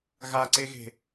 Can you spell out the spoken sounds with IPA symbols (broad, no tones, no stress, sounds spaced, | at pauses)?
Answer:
ɣ a ǀ e ɣ e̤